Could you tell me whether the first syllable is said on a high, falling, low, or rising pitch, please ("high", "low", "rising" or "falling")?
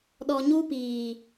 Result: low